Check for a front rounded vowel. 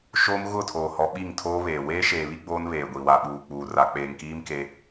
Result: absent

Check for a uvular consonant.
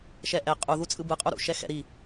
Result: present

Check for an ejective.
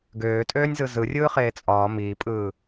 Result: present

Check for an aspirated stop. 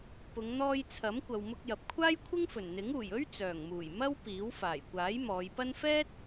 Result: present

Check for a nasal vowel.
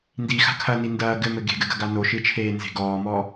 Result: absent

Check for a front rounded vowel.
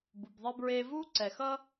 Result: absent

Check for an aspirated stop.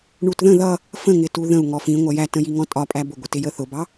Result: absent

